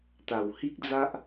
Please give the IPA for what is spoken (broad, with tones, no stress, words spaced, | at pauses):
t̪a˨˩whi˦k̚d͡za˦ʔ